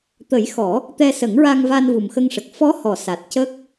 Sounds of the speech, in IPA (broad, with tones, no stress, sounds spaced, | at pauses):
t̪ ə˨˩˦ j x ɔ˨˩˦ | t̪ ɛ˧ s ə˨˩˦ ŋ ɹ a˧ ŋ v a˧ n v u˨˩ m x ə˧ ŋ ʂ ə˨˩ k̚ f ɔ˧˥ h ɔ˨˩˨ s a˨˩ t̚ c ə˦˥ k̚